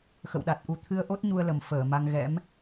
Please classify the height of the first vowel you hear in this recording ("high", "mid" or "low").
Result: mid